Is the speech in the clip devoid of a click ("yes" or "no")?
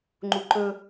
no